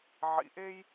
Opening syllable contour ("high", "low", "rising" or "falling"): low